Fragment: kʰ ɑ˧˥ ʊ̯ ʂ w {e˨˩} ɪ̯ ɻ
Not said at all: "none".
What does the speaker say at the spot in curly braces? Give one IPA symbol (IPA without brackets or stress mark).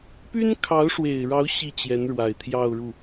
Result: e˨˩